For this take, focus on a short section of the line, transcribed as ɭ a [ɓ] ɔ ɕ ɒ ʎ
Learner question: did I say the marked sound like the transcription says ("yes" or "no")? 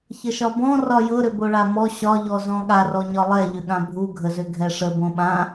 no